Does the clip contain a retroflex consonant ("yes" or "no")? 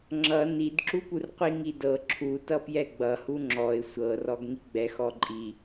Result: no